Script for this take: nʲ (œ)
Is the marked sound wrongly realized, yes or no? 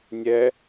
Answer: yes